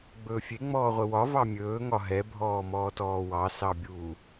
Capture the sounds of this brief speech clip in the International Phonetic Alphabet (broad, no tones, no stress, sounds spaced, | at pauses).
ɡ͡b ɵː fʲ e ŋ͡m ɔː ʁʷ ɘ w ɒ v ɑ mʲ ɵː ŋ ɒ ɦ ɛ bʱ ɔː m ɔː t ɔː w ɑ s ɑ bʲ uː